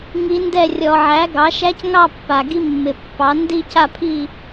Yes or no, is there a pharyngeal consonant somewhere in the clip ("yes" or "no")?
yes